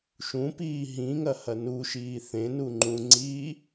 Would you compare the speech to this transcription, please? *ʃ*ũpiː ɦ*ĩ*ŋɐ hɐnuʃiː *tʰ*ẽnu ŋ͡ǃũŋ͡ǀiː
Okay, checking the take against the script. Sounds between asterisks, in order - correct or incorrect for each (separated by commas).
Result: correct, correct, incorrect